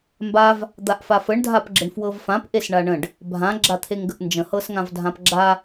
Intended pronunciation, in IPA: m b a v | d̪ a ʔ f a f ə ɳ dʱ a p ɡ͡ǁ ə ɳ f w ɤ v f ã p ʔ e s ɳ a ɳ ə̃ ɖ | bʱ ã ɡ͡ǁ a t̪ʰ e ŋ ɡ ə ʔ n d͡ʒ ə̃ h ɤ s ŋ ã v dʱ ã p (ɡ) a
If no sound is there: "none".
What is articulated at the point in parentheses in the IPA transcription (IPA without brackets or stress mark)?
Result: ɡ͡ǁ